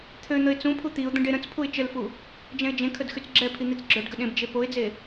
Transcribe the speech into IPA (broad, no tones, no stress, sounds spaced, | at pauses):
t̪ʰ ø n̪ ə ɪ̯ t͡s ũ pʰ u t̪ i ʊ̯ d̪ ə̃ ɖ e ɾ ə̃ t͡s pʰ u ɪ̯ t͡ʃ ə l f u | d͡ʒ ɛ̃ ɪ̯ d͡ʒ ẽ kʰ ə d x y t͡s ɡ͡ǁ ɛ pʰ i n̪ i t͡s ɡ͡ǁ œ ɖ ɡ ə ɗ ẽ b d͡ʒ e p o ɪ̯ d͡z e